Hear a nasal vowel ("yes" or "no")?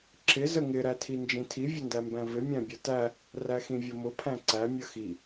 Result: yes